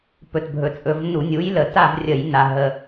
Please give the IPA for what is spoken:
p ɵ˨˩ t bʱ ɵ˨˩ t͡sʼ ɵ˧˩˧ v n u˧˩˧ nʲ u˨˥ j l ə˨˩ t a˥˧ v rʲ ə˧˩˧ j n a˨˩ ɦ ə˨˩

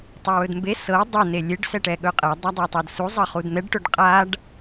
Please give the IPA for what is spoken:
tˤ ɵ w ɵ d m b e s ɤ dˤ ɤ n e lʲ e ɖ s ɛ ʈ ɛ ɠ ɵ qʼ ɛ dˤ a dˤ ɛ tˤ ɤ d s u zˤ ɤ χ u d n̪ ɛ ɖ ʈ ɵ ɖ qʼ a ɖ

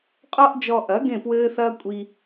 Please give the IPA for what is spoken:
qʼ ɔ˦ ʔ d͡ʒ ɔ˧ ʔ ɐ˨˦ ɡ ẽ˦˨ p w ɘː˦ θ ɐː˦ kʷʼ i˧

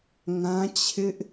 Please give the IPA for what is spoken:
ŋ ã˦ t͡ɕʰ ɪ˦ ʔ

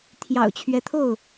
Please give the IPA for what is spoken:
t̪ʰ j ɑ̰˨˩ ʊ̯ t͡ɕʰ ɥ ɛ˦ t̪ʰ o˥˨ ʊ̯

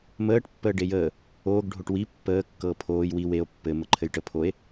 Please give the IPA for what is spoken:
m əː ʈ pː əː ɖ e j əː | oː ɡ ɖʱ o ʈ w i pː əː kː ɤː pʰ oː j w i w e o̯ pː ɘ m ə ǃʰ ɘ j ʈ ə pʰ o e̯

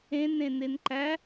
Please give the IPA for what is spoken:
ẽ n ẽ n e n ǃ æ

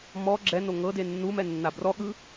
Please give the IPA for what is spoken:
m ɔ ɡ͡ǁ ɛ n o ŋ ɤ d e nː u m ɛ nː a b r ɔ ɠ ɯ

